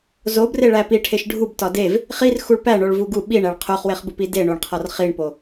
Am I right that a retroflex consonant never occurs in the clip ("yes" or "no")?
no